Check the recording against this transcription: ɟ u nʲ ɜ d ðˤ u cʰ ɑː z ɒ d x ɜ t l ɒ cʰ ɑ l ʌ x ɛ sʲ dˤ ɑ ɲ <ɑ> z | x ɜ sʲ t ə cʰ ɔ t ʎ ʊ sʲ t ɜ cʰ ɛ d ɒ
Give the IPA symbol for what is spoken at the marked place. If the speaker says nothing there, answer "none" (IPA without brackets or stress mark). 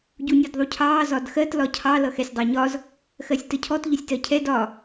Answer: ɒ